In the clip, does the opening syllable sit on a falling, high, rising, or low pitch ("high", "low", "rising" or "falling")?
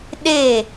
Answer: falling